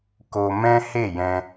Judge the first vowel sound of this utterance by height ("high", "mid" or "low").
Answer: mid